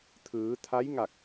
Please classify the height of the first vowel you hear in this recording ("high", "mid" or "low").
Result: high